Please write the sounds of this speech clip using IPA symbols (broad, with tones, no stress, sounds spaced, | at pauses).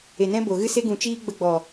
e˨ n ɛ̃˦ b o˨ ɣ ɨ˦ s e˦ ɡ ũ˨ t͡ʃ iː˦ ɡ͡b ə˧ ɡ͡b ɔ˨